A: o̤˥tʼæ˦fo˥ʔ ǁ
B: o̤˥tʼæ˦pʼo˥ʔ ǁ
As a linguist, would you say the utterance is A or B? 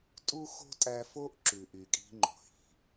A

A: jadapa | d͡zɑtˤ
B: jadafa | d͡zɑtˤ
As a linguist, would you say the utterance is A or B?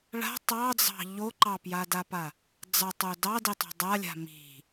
A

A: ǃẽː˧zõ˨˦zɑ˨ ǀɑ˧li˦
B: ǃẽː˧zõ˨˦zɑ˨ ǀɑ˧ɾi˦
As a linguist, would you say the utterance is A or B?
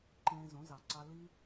A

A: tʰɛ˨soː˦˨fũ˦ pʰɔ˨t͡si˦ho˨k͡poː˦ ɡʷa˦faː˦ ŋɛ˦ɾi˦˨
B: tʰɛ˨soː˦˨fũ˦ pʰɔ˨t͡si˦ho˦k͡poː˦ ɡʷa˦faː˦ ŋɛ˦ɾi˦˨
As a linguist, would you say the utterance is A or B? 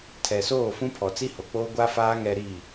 A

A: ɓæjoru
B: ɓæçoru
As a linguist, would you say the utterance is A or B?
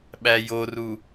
A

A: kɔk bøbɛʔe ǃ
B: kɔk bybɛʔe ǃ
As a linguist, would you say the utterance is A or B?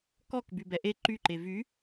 B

